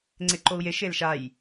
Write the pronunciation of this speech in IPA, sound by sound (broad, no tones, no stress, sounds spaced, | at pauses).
ŋ͡ǀ e ǃ o u̯ j e ʃ e l ʃ a j